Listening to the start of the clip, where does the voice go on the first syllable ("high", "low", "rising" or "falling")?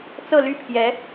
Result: falling